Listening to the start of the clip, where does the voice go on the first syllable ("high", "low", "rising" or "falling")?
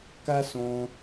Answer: high